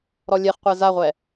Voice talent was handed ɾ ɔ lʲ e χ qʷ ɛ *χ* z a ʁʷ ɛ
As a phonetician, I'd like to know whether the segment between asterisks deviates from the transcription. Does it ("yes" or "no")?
yes